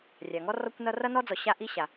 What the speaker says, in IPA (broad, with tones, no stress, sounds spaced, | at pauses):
rʲ a˩ ŋ ɔ˥ r ɔ˥ kʷ n ʌ˥ r ʌ˥ n ɔ˥ d͡z ɔ˩ ɕ a˥ ʔ i˥ ɕ a˩